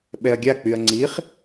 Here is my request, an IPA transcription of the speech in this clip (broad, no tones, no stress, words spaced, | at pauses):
ɓɛɐ̯ɡʲak͡pyɐ̯ ŋ͡ǀiχ